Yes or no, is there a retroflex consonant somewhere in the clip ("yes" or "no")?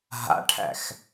yes